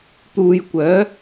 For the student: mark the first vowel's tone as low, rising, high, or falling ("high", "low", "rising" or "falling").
low